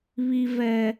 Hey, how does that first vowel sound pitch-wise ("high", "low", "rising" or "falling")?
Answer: high